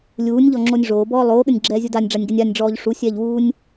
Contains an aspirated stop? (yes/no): no